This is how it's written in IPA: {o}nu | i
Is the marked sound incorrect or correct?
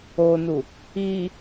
correct